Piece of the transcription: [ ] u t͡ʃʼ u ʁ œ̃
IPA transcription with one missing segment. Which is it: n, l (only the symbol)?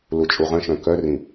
l